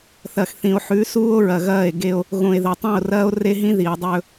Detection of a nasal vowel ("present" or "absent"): present